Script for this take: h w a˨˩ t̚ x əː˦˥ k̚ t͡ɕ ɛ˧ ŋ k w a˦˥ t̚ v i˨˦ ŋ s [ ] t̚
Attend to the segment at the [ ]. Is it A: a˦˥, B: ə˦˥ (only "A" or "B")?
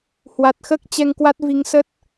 B